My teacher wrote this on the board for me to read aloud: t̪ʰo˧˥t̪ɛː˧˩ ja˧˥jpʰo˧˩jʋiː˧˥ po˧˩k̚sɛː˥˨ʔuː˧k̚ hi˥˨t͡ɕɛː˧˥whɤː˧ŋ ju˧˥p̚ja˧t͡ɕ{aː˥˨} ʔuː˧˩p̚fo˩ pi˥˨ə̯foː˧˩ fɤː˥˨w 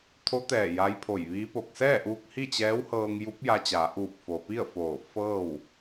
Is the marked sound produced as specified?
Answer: no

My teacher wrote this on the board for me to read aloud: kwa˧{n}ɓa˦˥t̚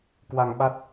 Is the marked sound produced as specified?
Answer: no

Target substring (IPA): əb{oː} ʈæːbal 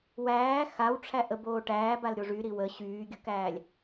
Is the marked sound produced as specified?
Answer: yes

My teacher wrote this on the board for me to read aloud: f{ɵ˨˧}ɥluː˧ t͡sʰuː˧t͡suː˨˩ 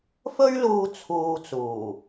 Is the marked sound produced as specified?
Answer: no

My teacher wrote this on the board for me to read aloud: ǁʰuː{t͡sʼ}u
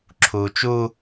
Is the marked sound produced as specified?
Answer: no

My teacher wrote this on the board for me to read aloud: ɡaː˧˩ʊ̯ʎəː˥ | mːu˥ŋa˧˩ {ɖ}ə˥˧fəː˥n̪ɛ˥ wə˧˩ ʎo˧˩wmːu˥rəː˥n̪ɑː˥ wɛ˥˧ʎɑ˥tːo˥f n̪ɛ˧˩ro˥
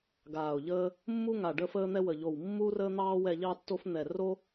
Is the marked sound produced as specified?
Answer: yes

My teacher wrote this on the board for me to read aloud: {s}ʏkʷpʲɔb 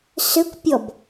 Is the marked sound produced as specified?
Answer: yes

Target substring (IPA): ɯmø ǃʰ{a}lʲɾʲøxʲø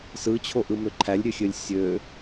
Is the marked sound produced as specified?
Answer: no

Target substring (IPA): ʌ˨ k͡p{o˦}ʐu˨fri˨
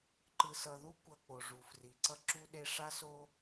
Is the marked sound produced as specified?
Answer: no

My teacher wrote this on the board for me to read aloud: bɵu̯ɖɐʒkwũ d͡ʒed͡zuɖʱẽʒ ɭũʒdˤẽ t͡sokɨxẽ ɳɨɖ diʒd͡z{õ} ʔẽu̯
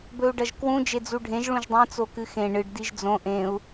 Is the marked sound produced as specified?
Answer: yes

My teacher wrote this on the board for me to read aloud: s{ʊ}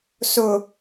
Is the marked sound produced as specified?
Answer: yes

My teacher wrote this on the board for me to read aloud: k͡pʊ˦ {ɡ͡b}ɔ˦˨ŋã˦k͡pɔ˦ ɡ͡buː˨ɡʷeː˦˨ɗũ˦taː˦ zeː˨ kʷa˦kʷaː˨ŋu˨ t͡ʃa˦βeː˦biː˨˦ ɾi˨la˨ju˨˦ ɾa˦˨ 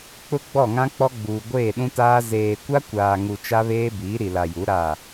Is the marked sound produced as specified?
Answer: yes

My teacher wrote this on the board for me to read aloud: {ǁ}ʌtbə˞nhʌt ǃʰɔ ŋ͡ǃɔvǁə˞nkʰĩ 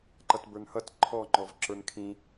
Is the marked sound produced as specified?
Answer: no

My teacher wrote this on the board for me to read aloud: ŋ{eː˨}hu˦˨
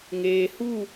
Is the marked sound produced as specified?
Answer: yes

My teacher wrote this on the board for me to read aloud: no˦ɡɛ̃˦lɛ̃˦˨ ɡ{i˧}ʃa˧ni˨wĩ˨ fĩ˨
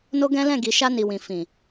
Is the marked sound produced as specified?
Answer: no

